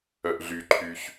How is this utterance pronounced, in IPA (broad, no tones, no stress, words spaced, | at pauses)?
œʔɮyǃʰyç